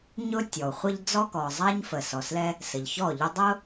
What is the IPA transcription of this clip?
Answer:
ɲ ʊ˥ tʲ ɔ˩ u̯ χʷ ə˥ ʎ d͡z ɔ˥ k ɔ˩ zˤ a˥ ɲ f ə˩ s ɔ˩ s l ɛ˥ | s ə˩ ʎ ç ɔ˥˩ ʎ ʊ˥ dˤ ʊ˥

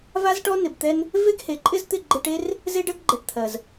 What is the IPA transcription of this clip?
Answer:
v a˦ z ʈ ɔ˦ n ɪ˨ b t̪ ɛ˦ n | v e˦ ɡ h e˨ ǃʼ ɪ˦ z t̪ ɪ˦˨ ɡ͡ǃ e˧ ʈ e˦ r | z e˦ ɖ ɜ˦ ɡ ɡ͡ǃ ɛ˨ ʈ t̪ʰ ɜ˨ z

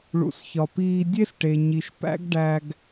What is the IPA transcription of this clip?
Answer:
ɭ ṵ˨ s ç ɒ˨ p iː˧ dʲ e˦ s ʈ e˨ ɲ i˨ ʃ p æ̰˦ ɡ ɖ æ˧ ɡ

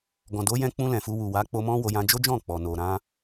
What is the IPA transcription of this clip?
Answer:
ɡ ɔ̃˨ d o˨˦ j ɛ̃˧ k͡p ũ˧ l ɛ̃˨ f u˧ w u˨ w a˨˦ k͡p o˧ m ɔ̃˦ w o˧ j ã˦ d͡ʒ o˦ d͡ʒ ɔ̃˦˨ k͡p ɔ˨ n o˨ ɾ ã˧

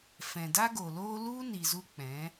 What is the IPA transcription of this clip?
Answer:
f ɛ̃˨ d a˦ ɡ o˨ l oː˦ l u˦ n i˨ z u˧ k͡p ɛ̃˨˦

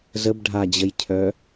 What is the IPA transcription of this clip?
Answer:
z ə b ɖʱ a d͡ʑ ə j cʰ œ

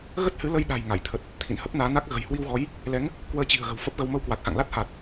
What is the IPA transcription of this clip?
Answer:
ɣ ə˦˥ t̚ h ɨ˨˦ l ə˧ j ɗ a̤˨˩ j ŋ a˧˩ j t̪ʰ ə˨˩ t̚ | t̪ʰ ḭ˧˨ n h ə˦˥ p̚ n aː˨˦ n a˦˥ k̚ ɣ ə̤˨˩ j h w i˧ w ɣ ɔ˨˦ j | l ɛ˨˦ ŋ | k w əː˧ t͡ɕ i̤˨˩ ə̯ ɣ ə̤˨˩ w f ə˦˥ p̚ ɣ ə˧ w m ə˧ w k w a˨˩ k̚ x a̰˧˨ ŋ l a˦˥ t̚ h a˨˩ t̚

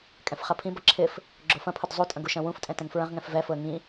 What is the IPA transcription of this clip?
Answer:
kʼ ɛ̃ f χ ɐ pʰ ĩ b ɐ ǁʰ ɪ f | ɡ͡ǁ o f ɐ̃ pʰ ʊ d zˤ u tʼ ɐ̃ ɡ u ʃ ɐ̃ w ũ f tʼ ɛ̃ t ɛ̃ ŋ f ɹ ɐ̃ ʁ ŋ ɛ̃ f v ɛ f ʊ ə̯ ŋ ĩ

